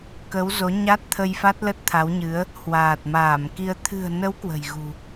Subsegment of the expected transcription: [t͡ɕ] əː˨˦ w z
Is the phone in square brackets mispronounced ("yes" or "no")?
yes